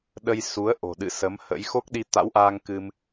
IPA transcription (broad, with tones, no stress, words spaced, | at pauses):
ɗə˧jsu˨˦ə̯ʔo̤˨˩ɗɨ̰˧˨ sə˨˦mhə̰˧˥j xo˦˥k̚ɗi˧t̪a̰˧˥wʔaː˧ŋ kɨ˧m